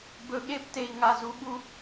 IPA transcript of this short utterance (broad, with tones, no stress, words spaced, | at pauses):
bɵ˨ɠe˦pte˨i̯ŋa˨ zu˨ɠu˦